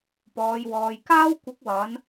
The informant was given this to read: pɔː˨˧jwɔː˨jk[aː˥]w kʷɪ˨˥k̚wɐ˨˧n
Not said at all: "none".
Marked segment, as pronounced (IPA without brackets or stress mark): aː˥